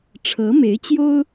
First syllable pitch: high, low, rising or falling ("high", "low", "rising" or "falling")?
rising